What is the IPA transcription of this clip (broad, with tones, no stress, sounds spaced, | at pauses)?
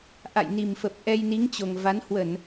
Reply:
ʔ a̰˧˨ j n i˨˩ m f ə˨˩ p̚ ʔ ɛ˧ j n i˨˦ ŋ t͡ɕ o˨˩ ŋ v a˨˦ n h w ə˧˩˨ n